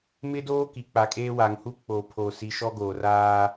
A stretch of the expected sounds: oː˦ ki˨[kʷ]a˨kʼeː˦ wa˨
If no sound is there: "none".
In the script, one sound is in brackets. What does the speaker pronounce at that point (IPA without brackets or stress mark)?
k͡p